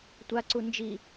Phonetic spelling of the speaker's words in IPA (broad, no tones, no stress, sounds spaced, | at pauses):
tʷ a ǀ u n d͡ʒ i